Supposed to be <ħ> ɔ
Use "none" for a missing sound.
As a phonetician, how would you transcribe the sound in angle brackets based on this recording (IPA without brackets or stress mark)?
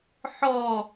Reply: ħ